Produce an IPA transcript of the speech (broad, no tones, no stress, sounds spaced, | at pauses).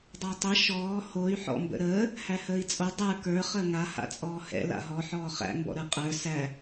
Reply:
dˤ a tˤ ə ʃ ɔː h o y̯ ħ ɔ̰ m b ə̰ ɾ əː | h æ h əː i̯ t͡sʼ o dˤ ə˞ k ə˞ χ əː ŋ a h a̰ t͡sʼ ɔː h ɛ̰ l a̰ ɦ ɔ ħ ɔː χ æ̰ m b ɔ̰ ɾ ə˞ qʼ ə˞ s æ